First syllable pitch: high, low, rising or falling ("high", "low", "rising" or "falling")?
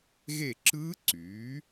falling